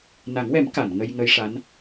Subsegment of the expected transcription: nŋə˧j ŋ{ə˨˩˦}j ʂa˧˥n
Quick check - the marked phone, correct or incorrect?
incorrect